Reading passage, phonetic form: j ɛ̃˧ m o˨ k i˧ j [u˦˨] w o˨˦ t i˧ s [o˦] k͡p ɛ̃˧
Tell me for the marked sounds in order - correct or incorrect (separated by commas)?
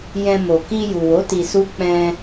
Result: incorrect, incorrect